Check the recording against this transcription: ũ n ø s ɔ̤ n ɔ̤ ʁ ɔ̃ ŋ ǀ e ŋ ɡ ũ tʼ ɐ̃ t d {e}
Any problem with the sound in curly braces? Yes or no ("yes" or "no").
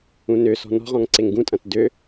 yes